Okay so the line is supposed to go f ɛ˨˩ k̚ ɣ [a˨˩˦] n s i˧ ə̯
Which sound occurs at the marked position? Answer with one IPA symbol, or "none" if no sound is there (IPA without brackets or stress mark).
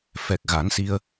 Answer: a˨˩˦